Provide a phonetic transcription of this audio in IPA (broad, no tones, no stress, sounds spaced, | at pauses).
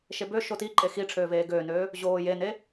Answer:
ʃ e b ø ʃ o t i ǃʼ e x i ʈ͡ʂʰ øː v eː ɡ øː n øː | ʑ oː j e n e